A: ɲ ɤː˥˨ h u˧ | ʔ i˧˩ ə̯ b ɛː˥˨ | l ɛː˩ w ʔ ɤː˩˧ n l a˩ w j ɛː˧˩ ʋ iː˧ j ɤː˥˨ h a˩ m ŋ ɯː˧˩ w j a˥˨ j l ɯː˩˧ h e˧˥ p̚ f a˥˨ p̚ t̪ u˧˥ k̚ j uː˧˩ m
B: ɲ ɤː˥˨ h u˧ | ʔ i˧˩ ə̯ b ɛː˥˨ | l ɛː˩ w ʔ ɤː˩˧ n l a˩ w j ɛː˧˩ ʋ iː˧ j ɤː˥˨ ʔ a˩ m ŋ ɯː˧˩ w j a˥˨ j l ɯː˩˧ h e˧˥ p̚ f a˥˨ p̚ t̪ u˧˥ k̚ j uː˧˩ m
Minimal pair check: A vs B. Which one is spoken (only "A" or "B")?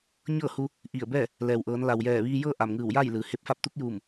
B